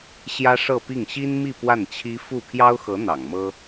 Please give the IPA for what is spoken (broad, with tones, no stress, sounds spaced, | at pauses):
ɕ j ä˥ ʂ ɤ˥˧ p i˥˩ ŋ ɕ i˥ n m i˥˧ p w a˥˩ n t͡ɕʰ i˥ f u˥˩ pʰ j ɑ˥ ʊ̯ x ɤ˧˥ n̪ ɑ̰˨˩ ŋ m ɤ˥